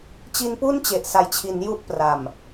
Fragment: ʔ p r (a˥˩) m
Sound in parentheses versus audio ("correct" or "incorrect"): incorrect